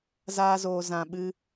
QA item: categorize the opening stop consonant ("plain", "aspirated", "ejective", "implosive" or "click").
implosive